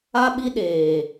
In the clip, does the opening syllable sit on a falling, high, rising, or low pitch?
high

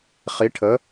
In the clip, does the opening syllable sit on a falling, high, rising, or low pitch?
rising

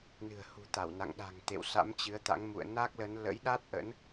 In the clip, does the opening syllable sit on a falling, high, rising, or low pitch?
low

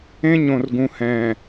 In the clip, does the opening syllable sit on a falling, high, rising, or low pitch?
high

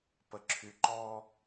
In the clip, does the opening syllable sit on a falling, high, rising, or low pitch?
low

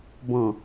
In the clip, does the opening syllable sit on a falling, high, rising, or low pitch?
low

